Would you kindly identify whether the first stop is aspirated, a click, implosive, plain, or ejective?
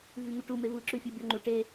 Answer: plain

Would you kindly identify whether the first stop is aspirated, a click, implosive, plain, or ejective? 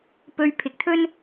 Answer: plain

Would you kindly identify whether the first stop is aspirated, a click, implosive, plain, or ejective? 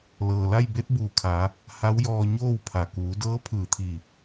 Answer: plain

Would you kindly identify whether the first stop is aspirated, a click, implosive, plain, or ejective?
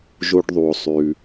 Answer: plain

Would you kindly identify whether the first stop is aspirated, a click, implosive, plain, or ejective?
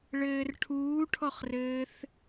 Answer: aspirated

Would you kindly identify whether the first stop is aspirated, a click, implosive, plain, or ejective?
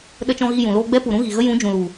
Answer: implosive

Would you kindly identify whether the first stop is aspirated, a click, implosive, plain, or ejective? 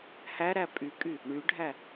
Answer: ejective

